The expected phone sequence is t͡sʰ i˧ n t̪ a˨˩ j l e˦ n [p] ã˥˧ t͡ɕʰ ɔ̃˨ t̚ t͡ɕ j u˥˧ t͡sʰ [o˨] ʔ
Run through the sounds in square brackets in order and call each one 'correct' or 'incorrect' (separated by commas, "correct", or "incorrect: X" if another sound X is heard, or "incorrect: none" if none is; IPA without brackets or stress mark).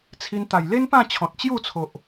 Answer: correct, correct